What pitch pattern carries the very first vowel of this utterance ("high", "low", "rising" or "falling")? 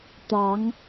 rising